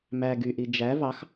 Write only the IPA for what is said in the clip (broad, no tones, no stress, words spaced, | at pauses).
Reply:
mæ ɡyʔi d͡ʒæ vɑx